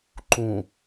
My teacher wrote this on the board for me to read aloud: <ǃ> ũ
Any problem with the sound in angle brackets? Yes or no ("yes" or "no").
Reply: no